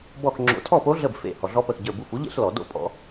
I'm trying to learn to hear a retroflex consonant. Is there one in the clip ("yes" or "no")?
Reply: no